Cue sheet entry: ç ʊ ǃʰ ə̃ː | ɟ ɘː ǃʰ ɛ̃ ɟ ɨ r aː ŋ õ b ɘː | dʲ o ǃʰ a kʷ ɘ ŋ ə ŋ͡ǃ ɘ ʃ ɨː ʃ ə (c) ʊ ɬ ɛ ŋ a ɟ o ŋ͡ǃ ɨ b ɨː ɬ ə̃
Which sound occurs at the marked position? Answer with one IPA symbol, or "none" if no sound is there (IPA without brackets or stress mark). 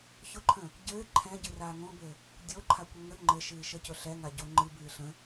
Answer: c